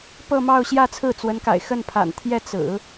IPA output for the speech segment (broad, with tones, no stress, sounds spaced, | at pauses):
p ɤ˥˧ m ɑ˥˧ ʊ̯ ɕ j ä˥˧ t͡sʰ ɹ̩˥˩ t͡s w ə˧˥ n k a̰˨˩ ɪ̯ x ə˥˩ n pʰ a̰˨˩ n t̪ʰ j ɛ˥˩ t͡s ɹ̩˨˩˦